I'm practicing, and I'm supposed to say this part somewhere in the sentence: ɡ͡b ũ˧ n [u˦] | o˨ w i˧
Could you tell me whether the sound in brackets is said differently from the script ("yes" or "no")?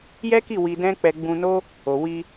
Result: yes